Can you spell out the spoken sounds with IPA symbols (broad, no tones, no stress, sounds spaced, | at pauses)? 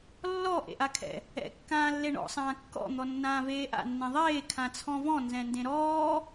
lː ɔ ʔ ḛ ʔ a kʰ ɛ̰ | ɛ̰ kː ãː lː e ɳ ɔ̰ sˤ ãː kː ɔ̰ n̪ ɔ nː ãː v eː ʔ a̰ nː ẽ ðˤ eː kʰ ã t͡sʰ ɔ̃ v ɔ̃ n z ɛ̃ n d ẽ ɾ ɔː